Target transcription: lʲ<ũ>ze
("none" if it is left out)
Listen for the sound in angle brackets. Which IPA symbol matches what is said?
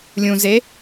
ũ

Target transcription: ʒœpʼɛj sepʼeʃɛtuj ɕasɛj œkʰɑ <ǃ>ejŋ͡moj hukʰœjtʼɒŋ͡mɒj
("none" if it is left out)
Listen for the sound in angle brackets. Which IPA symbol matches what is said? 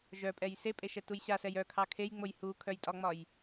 kʰ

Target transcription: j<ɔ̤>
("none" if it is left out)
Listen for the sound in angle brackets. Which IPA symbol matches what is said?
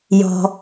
ɔ̤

